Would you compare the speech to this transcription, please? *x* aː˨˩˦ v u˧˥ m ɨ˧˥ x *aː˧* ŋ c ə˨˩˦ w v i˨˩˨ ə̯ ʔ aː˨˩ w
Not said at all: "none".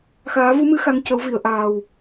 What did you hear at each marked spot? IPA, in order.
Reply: x, a˧

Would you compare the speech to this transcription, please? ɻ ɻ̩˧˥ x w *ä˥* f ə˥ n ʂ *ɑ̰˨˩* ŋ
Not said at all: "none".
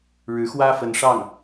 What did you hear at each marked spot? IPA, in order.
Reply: ä˥, ɑ˥˩

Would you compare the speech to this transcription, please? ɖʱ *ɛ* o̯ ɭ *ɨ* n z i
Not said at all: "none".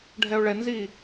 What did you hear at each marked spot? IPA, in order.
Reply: ɛ, ɛ

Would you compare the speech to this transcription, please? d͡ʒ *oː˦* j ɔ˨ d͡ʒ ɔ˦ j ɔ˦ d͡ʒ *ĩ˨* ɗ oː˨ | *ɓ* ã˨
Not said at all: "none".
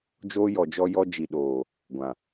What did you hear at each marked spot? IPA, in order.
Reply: oː˦, i˨, ɡʷ

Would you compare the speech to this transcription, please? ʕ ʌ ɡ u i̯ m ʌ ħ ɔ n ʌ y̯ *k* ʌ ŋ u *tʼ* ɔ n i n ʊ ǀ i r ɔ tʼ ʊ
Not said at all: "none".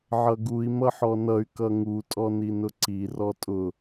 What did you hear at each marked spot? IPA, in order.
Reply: k, tʼ

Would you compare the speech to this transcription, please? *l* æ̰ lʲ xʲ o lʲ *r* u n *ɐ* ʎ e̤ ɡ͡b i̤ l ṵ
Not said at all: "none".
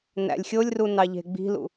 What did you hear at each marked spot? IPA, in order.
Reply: n, r, ɑ

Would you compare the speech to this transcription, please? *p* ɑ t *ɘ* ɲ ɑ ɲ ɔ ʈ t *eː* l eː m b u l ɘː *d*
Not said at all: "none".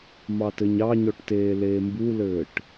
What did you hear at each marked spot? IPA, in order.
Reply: m, ɘ, eː, ʈ

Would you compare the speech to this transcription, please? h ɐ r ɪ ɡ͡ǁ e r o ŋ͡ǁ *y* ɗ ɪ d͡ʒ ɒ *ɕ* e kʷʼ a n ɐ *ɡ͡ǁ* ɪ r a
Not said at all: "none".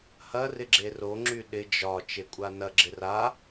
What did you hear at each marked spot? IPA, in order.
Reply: y, t͡ʃ, ɡ͡ǁ

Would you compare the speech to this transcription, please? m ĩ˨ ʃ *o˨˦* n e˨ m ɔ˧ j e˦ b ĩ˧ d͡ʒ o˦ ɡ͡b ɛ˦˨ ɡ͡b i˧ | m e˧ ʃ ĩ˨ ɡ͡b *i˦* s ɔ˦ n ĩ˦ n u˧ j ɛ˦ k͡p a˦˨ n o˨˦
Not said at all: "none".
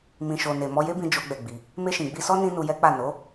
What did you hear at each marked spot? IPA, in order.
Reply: o˨, i˧

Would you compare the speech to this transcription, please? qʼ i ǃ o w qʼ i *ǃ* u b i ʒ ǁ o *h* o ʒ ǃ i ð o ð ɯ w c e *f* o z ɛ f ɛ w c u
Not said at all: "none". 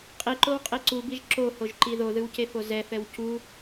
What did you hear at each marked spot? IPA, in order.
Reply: ǀ, h, f

